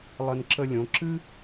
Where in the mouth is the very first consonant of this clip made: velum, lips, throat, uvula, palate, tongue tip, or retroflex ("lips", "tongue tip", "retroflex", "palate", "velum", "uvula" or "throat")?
tongue tip